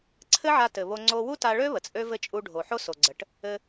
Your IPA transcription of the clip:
ǀʰ ɘ˥ ʕ a˧ t ɘ˩ β o˧ ŋ͡ǀ o˧ w u˥ t a˧ ɭ ø˥ β ə˩ t͡sʼ ø˥ v ɘ˥ t͡ʃʼ u˧ ɖʱ o˩ ħ o˥ s o˩ ɡ͡ǀ ə˩ ʈ | ɘ˧

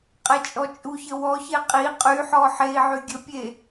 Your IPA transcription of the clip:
qʼ e t͡ʃʼ ɔ t͡ʃʼ u ç ə w ɔ ç e qʼ i qʼ y ħ ɔ ħ e i̯ ʕ y ɡʲ ə pʲ e

